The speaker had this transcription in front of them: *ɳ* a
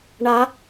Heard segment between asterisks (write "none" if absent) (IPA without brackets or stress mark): ɳ